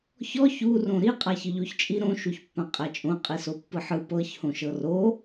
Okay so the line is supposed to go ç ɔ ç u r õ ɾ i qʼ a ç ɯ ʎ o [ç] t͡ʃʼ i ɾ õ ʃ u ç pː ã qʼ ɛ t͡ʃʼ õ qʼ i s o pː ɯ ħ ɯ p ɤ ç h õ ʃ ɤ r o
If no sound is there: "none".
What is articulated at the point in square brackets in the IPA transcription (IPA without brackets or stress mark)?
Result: ç